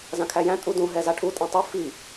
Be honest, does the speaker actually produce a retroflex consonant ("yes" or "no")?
yes